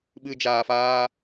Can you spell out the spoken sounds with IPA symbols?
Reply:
ɓ ɨ˧ d͡ʒ aː˧ f aː˦

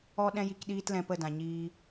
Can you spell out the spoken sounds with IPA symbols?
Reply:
ɔ˦ ɗ ɛ̃˦ j i˧ k ɗ iː˦ t l ɛ̃˧ p ə˦˨ d ã˨ ɲ iː˧

